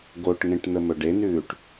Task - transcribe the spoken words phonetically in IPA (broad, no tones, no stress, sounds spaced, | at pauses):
ɡ o ʈ ŋ ẽ ʈ n̪ ə m ɵ ɖ e n ʉː ʈ